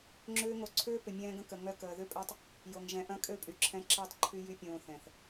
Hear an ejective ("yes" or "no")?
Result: yes